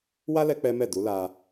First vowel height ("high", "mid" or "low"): low